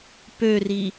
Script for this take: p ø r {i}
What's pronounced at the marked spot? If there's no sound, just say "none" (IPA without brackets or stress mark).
i